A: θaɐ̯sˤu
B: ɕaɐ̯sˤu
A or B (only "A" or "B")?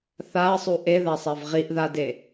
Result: A